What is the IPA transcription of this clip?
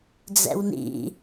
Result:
d͡z ɛ̰ w n ḭ

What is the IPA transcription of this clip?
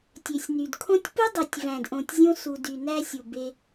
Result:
tʲ ø˨ sʲ n y˨ d kʰ õ˦ tʲ p u˦ dˤ e˨ tʲ v æ̃˨ d ʔ õ˨ tʲ zʲ õ˧ s u˨ d y˨ n æ˧ sʲ u˨ b e˧

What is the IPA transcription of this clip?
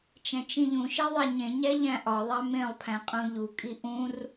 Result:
t͡ʃ æ̃ t͡ʃ ĩ ʎ ũ ʃ e ðˤ æ ɲ ẽ ɲ æ ʎ æ̃ ʔ ɒ ðˤ æ m ẽ lˠ pʰ æ̃ qʼ ũ ʎ u kʼ i ʔ ũ r

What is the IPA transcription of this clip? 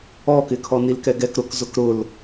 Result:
ɔ k ɪ kʰ ɔ n i l k ɛ ɡ ɛ k ɾ ʊ k z ʊ k ɾ ʊ l

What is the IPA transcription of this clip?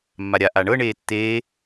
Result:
mː a ɾʲ a ʔ a ɳ ɤ ɳ eː tː eː

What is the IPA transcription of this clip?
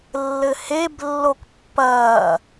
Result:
lː ɘ h e b lː o k pː ɐː

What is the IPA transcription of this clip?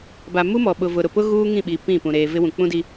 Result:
b a˨ m u˦ m ɔ˨ ɓ ʊ˨ v ʊ˨ ɾ ʊ˨ p ʊ˦ ɣ uː˦ ŋ ĩ˦˨ ɓ i˨ p ĩ˦˨ p ũ˨ ɾ eː˨ v ɪ˦ w ũ˨ k͡p ũ˦ d i˦

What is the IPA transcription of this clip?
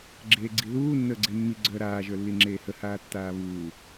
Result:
ɡ͡ǁ eː ɡ͡ǀ i ð uː nː əː ɡ͡ǀ e mː i ɡ͡ǀ œː ɾ aː ʒ ə˞ lː i ŋ͡ǁ eː h ə h aː tː aː β uː

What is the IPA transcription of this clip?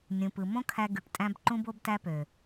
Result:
nʲ ũ˨ p ɯ˨ m õ˦ kʰ æ˧ ɡ y˨ ʈ tʼ æ̃˧ b ǃ ũ˧ b o˧ b t æ˧ p ø˨

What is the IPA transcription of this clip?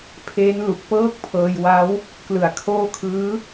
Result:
pʰ eː˦˥ n l u˨˩ k̚ p ɤː˥˩ k̚ pʰ ɤː˧ j w a˦˥ w | k l ɯ˨˩ a̯ kʰ oː˦˥ kʰ ɯː˦˥

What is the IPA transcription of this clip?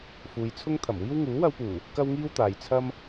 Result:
f uː˨ j t͡sʰ ʊ˥ ŋ t̪ʰ ɐ˨˩ m w iː˥ w ŋ uː˨˥ w ɐ˧ w p uː˨˩ | k ɐ˥ w ŋ iː˥ w t̪ aː˨ j t͡sʰ ɐ˥ m

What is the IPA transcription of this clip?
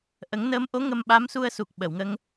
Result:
ʔ ə˨˩˦ ŋ n əː˧˥ m ʔ o˧˥ ŋ ə˧ m ɓ a˧˥ m s u˧ ə̯ s u˨˩ k̚ ɓ ə˨˩˨ w ŋ ə˧ ŋ

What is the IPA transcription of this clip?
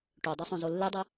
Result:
ʈ ø dˤ ø sˤ õ z o lː e dˤ ɛ

